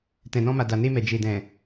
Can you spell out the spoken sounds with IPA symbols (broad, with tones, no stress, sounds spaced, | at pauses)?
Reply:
t ɛ̃˨ n ɔ̃˧ m a˨ d a˨ n e˧ m ɛ˨ d͡ʒ e˨ d ɛ̃˨